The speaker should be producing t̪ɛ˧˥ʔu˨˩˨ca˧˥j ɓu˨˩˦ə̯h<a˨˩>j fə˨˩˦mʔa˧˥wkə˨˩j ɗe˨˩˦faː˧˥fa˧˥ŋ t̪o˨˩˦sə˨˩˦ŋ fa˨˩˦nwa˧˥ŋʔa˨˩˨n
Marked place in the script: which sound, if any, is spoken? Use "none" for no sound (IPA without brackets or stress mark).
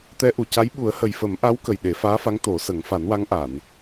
ə˨˩